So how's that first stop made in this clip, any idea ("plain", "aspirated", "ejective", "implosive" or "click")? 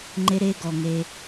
click